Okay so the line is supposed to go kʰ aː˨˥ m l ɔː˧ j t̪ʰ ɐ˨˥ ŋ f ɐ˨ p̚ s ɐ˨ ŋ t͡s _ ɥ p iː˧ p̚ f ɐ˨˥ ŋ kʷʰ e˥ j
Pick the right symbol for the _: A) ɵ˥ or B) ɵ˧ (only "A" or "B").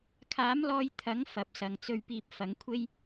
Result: B